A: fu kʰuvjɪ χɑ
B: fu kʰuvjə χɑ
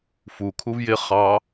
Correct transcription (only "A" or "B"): A